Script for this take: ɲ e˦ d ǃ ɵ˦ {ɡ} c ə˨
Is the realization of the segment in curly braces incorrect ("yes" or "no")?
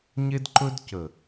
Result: yes